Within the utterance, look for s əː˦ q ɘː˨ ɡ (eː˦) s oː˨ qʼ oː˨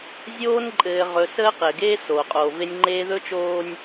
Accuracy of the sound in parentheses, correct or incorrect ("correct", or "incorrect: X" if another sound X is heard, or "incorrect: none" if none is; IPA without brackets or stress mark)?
correct